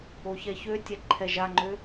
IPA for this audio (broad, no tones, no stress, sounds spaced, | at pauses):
o ç ɛ ç ø tʲ ɛ ǃʰ ɛ ʒ a ŋ͡ǃ ø